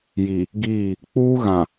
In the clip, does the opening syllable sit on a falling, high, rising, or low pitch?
low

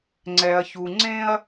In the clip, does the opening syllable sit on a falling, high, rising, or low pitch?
low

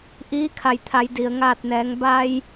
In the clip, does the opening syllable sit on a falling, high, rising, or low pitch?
rising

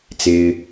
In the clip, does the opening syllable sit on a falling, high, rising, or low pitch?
high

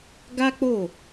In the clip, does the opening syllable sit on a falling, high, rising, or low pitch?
high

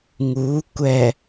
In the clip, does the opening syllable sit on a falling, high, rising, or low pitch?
rising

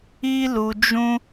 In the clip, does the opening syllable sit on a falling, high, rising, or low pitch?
high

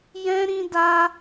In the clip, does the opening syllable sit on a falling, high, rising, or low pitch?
high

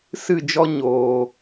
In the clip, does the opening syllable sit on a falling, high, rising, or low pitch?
falling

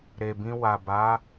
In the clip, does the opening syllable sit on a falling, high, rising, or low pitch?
low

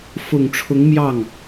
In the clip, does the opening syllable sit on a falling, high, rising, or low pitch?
low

